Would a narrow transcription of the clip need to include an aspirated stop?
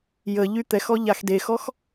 no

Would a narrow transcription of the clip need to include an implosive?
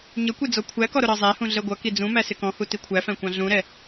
no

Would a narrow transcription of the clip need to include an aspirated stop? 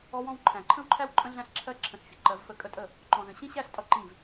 yes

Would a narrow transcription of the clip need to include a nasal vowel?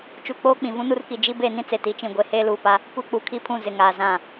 yes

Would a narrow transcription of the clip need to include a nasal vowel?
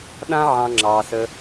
yes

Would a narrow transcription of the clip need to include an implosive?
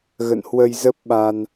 yes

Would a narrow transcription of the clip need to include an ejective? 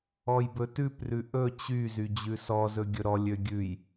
no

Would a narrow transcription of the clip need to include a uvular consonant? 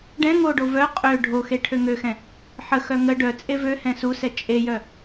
yes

